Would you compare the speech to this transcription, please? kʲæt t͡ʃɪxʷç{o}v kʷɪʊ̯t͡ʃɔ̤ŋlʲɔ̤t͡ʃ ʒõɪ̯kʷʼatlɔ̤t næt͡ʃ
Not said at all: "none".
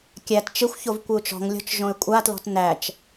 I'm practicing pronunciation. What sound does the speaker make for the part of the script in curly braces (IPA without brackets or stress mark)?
o